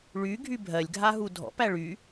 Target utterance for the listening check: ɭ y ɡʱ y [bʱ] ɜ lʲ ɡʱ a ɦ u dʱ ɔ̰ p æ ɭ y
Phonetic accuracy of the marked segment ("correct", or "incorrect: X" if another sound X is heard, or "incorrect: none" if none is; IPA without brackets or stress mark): correct